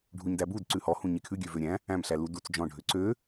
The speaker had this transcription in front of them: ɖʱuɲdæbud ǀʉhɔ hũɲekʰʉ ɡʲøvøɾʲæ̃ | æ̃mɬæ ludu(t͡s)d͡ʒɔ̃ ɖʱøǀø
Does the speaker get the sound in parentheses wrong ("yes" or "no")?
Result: no